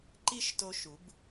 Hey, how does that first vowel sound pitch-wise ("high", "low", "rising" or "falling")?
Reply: falling